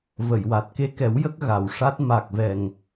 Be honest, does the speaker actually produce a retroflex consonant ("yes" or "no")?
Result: yes